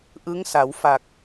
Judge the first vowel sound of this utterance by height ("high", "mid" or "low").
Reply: high